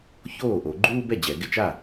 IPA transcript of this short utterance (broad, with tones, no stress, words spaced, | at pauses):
çoː˥˩ʔo˨˩˦ ɡ͡ǃuː˥bɛ˥˩d͡ʑɛ˨˩˦ ɡɪ˧t͡ʃa˥˩